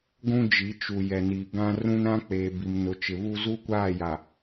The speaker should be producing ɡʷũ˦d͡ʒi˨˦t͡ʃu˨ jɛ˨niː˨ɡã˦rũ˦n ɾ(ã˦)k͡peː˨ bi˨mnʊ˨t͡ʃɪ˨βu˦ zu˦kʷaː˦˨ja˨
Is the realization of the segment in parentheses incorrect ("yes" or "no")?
no